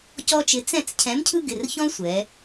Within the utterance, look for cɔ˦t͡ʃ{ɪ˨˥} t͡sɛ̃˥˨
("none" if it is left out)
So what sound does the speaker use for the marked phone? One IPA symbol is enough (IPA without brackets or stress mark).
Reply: ɪ˨˥